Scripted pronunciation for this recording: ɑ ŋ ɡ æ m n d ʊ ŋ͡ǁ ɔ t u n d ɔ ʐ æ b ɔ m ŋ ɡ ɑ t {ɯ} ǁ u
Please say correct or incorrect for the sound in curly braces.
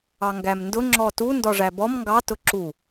incorrect